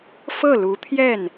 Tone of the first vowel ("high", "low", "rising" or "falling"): falling